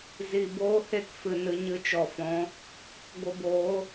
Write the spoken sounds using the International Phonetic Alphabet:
z i˨ b oː˦ h e˦˨ k f ɨ˨ n ɨ˧ ɲ ɨ˧ t͡ʃ ɔ˨ f ɔ̃˨˦ | ɡʷ ə˧ b oː˨˦

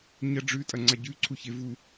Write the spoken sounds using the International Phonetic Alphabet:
ɲ ɐ ɖ͡ʐ ʉ tʼ ɐ ŋ͡ǀ a ɟ ʉ ǀʰ u ç e v u

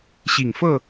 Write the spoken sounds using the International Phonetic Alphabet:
ɕ i˨˩ ŋ f ɤ˥˨

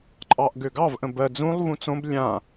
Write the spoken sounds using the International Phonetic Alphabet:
ǃʼ ɑ ʔ ɡ ø ɡ ɑ v ʔ ə̃ b ɜ d͡z ũ lˠ v ũ t͡s õ b lʲ ã

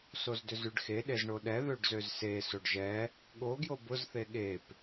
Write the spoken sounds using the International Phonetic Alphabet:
s o z d ʏ z y ɖ x e ɗ e z ɳ o ɗ ɛ ð ø ɖ z ø z s e s o ɖ ʒ ɛ | ɠ o ɡ j o b ʊ z θ e ɠ e p

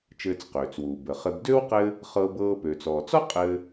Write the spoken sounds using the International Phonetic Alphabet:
t͡ʃ ɘː˧ t͡s q øː˩ t͡s w uː˩ b ə˩ χ ɘ˧ b d ø˥ w q ɘ˥ | χ ɤ˧ b ɤː˧ p ø˩ t͡s ɔː˩ t͡s ɔ˥ qʼ ɘː˧

